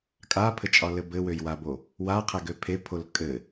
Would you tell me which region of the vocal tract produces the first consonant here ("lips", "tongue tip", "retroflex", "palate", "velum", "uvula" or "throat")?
velum